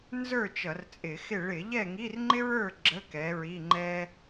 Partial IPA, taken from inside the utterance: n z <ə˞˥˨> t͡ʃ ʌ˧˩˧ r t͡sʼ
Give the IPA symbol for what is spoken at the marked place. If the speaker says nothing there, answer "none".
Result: ə˞˥˨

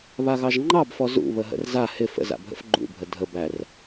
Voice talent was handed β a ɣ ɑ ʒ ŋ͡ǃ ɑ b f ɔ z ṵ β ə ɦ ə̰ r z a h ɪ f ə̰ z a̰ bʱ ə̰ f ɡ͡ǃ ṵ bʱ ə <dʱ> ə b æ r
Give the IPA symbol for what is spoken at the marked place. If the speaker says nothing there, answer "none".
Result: dʱ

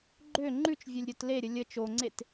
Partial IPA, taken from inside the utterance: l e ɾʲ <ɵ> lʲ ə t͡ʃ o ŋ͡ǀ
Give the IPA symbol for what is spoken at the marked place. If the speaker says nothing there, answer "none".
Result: ə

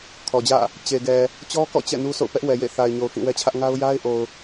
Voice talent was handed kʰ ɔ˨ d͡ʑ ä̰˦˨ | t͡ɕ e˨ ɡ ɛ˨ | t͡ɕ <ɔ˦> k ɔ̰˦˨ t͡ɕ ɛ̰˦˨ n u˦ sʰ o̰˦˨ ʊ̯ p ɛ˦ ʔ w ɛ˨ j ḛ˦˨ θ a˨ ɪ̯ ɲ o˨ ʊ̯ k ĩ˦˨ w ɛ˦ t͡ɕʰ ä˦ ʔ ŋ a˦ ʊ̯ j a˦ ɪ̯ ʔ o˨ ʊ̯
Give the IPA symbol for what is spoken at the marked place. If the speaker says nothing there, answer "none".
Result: ɔ˦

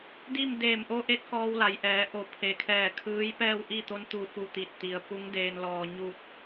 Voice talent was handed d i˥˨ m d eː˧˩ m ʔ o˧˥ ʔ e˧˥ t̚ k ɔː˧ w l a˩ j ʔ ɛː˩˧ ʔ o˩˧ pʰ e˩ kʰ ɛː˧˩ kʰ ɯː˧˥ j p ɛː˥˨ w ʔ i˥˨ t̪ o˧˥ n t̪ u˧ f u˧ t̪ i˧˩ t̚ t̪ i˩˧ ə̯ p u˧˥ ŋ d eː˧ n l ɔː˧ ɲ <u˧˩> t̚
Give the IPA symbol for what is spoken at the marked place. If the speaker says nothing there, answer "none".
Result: u˥˨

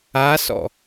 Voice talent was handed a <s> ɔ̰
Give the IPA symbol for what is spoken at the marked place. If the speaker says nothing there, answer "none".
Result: s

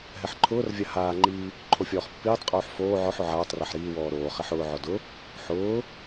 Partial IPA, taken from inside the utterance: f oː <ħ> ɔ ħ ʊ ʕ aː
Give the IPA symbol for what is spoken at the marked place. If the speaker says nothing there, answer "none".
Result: ʕ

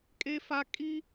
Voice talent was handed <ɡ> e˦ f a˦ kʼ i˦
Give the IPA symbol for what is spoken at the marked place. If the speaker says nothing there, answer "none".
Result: kʼ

